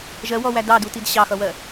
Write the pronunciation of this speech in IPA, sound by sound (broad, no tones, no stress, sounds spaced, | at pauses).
ʒ ɜ w ɔ w æ d ɑ d u t i d ɕ ɑ x ʌ w ɜ